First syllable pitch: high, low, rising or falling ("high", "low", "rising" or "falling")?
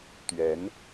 rising